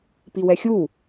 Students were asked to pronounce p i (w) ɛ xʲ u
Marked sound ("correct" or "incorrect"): correct